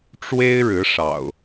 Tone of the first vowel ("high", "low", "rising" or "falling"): high